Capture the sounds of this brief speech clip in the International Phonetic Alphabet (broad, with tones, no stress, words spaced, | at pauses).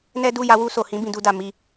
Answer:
nɛ˦du˦˨ ja˧wu˧so˨hĩ˨˦ bĩ˧du˦da˧ mi˧